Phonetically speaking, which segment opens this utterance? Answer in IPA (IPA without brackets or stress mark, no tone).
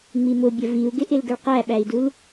ŋ͡m